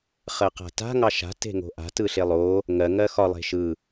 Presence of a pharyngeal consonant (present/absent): absent